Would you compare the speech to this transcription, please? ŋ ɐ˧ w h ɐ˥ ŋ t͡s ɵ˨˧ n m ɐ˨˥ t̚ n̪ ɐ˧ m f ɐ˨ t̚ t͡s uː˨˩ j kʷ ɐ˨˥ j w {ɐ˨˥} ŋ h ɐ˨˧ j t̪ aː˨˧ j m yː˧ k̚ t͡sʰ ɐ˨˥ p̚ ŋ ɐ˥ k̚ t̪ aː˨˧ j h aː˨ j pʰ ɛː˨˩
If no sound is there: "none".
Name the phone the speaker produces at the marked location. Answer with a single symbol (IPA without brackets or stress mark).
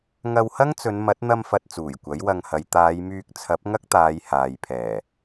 ɐ˧